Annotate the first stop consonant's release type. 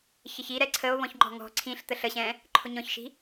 click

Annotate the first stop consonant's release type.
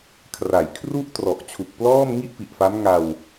aspirated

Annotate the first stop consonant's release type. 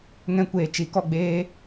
plain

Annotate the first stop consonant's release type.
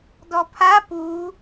plain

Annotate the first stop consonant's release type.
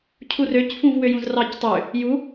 aspirated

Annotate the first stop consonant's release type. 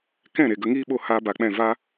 plain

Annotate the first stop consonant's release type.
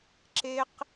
click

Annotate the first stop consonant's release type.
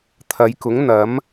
aspirated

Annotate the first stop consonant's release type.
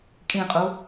ejective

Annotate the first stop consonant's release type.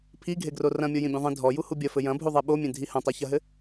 aspirated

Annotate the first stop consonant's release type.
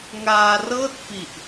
plain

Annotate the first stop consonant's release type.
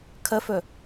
aspirated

